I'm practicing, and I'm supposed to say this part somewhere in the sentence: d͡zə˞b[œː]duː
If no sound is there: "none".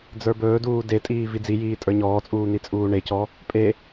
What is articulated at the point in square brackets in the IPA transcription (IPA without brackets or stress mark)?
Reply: ɵː